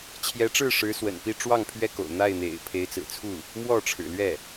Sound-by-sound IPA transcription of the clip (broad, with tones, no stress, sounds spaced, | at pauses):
t͡ɕʰ j ɛ˧˥ ʈ͡ʂ ɻ̩˥˩ ʂ ɻ̩˧˥ s w ə̰˨˩ n p i˥˧ ʈ͡ʂ w ɑ˥˩ ŋ pʰ ɥ ɛ˥ k o̰˨˩ ʊ̯ n̪ a˥˩ ɪ̯ n̪ ḛ˨˩ ɪ̯ pʰ e˧˥ ɪ̯ t͡s ɹ̩˨˩ t͡sʰ u˥˩ | m w ɔ˥˩ ʈ͡ʂʰ ɻ̩˨˩ l ɥ ɛ˥˩